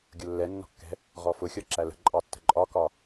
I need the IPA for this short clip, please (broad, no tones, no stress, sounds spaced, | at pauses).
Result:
ɡʲ ʊ lː ɛ nː ɔ̤ kː ɛ̤ | ʁ ɔ f ʊ xʲ ɔ ǁ æ l ə̤ ǃʼ ɑ tː ə̤ ǃʼ ɒ k ɒ